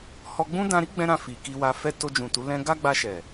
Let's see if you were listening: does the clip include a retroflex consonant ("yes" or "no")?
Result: no